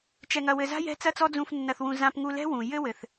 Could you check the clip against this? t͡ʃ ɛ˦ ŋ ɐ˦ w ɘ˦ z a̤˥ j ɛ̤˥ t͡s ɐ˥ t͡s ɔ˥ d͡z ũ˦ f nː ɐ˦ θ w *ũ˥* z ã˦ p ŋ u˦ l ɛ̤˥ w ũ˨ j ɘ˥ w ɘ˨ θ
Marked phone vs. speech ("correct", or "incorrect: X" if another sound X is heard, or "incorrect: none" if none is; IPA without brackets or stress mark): incorrect: ũ˦